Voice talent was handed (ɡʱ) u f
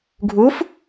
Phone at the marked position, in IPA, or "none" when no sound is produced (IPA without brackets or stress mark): ɡʱ